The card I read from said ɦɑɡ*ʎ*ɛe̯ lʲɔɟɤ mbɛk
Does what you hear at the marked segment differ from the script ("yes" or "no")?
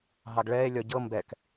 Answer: yes